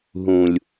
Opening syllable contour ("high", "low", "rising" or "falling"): low